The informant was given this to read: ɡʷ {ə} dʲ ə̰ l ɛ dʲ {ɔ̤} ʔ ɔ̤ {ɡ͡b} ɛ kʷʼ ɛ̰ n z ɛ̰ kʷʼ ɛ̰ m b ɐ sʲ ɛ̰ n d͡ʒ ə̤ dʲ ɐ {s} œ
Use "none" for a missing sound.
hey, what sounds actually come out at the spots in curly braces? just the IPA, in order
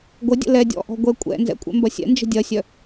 ə, ɔ̰, ɡʷ, sʲ

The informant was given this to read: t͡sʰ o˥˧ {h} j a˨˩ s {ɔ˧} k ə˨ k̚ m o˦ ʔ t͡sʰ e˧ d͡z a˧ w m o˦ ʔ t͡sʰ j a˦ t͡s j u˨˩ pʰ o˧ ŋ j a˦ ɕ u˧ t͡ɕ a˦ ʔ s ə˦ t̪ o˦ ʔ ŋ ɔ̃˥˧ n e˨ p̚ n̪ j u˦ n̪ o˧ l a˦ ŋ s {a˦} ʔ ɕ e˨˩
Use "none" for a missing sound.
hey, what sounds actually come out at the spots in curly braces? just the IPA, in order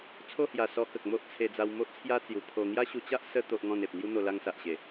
h, ɔ˧, a˨

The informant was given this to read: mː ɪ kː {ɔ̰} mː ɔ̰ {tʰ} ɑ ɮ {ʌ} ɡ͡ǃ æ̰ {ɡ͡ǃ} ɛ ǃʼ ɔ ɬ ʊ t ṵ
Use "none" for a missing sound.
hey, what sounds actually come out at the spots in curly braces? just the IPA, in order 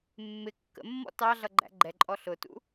ə̰, t, ʌ, ɡ͡ǃ

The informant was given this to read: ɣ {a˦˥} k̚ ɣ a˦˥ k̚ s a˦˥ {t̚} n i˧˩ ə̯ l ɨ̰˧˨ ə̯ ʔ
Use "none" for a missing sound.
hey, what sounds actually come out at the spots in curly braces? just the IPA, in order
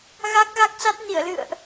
a˦˥, t̚

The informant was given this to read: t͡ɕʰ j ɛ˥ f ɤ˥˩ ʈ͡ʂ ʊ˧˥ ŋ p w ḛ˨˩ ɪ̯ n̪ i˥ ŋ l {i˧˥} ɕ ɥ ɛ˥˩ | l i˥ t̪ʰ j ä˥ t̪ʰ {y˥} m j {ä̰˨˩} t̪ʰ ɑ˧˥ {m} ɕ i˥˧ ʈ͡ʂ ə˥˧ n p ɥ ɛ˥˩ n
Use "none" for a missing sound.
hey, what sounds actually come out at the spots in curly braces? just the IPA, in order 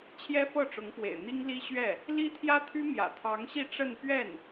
i˥, y˥, ä̰˨˩, ŋ

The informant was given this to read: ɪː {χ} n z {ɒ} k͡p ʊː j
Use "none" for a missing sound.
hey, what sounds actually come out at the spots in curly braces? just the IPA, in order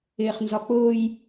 χ, ɒ

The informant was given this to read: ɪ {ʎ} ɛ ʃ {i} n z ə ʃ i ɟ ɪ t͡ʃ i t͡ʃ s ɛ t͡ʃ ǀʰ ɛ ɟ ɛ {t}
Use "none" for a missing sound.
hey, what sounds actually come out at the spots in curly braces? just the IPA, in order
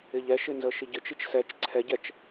ʎ, ɪ, t͡ʃ

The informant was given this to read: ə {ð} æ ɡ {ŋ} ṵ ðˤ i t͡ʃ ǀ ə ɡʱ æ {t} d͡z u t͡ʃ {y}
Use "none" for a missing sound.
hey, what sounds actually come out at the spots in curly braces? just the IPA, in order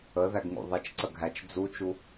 ð, ŋ, t͡ʃ, u

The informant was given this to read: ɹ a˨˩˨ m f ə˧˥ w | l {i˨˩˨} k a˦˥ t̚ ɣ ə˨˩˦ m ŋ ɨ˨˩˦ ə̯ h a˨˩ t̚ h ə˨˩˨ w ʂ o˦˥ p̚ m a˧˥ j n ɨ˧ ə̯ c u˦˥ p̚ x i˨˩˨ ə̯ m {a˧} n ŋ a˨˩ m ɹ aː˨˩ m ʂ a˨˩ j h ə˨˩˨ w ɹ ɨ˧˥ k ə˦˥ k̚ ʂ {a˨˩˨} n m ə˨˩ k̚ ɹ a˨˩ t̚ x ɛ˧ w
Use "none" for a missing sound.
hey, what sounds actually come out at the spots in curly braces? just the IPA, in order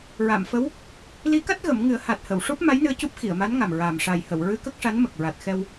i˧˥, a˧˥, a˧˥

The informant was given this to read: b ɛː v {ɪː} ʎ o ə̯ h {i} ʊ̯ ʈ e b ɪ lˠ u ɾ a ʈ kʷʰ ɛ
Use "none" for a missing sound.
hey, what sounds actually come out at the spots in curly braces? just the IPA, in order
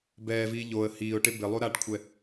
iː, iː

